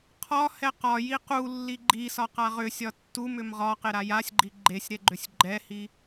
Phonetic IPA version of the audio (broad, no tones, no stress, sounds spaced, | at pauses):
qʰ ɒ h ɛ q ɒ j i q u lː i ɡ͡ǃ i s ɒ q a ʁ ʏ sʲ ɒ tː u m ʏ m ʁ ɒ q e ɾ a j a sʲ ɡ͡ǃ i ɡ͡ǃ e sʲ ɾ ɛ ɡ͡ǃ ʏ sʲ ɡ͡ǃ ɛ h i